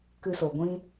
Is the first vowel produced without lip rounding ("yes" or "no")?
yes